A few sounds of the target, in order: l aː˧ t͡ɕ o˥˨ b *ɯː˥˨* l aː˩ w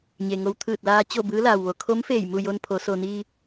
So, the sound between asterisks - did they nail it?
no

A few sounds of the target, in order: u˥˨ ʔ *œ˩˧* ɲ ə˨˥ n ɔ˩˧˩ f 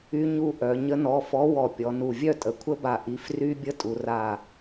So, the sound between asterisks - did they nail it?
yes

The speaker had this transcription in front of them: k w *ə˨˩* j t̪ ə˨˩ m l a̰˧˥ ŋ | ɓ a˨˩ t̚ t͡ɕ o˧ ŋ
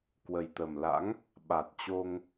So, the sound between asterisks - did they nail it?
yes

